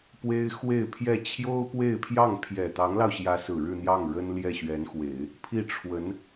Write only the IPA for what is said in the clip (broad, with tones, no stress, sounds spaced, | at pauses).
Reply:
p w e˥ ɪ̯ x w e˥˧ ɪ̯ pʰ j ɛ˥˩ t͡ɕʰ j o˥ ʊ̯ p w e˥˧ ɪ̯ pʰ j ɑ˥˩ ŋ pʰ j ɛ˨˩ t̪ ɑ˧˥ ŋ l ɑ˧ ʊ̯ ɕ j ä˧˥ s ɹ̩˨˩ ɻ ɻ̩˥˧ n̪ j ɑ˥˩ ŋ ɻ ə˥ n l j ɛ˥˩ ɕ ɥ ɛ˧˥ n x w e˨˩˦ ɪ̯ | pʰ i˥˩ ʈ͡ʂʰ w ə˧˥ n